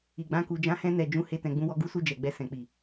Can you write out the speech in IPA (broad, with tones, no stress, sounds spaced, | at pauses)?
i˨ ɡ͡b ã˧ k u˨ d͡ʒ ã˨˦ h ɛ̃˧ n ɛ˨ d͡ʒ ũ˧ h e˧ t ɛ̃˨ ɡ͡b ũ˨˦ w ɔ˧ ɡ u˦ s u˧ d͡ʒ ɛ˨ ɡ͡b ɛ˧ s ɛ̃˨ k͡p i˨